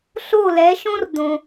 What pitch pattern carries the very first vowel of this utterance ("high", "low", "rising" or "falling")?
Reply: falling